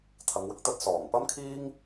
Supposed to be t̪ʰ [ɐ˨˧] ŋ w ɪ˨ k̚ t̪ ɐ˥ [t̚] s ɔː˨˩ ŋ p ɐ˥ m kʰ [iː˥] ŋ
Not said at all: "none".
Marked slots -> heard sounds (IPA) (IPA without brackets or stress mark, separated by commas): ɐ˨˧, t̚, iː˥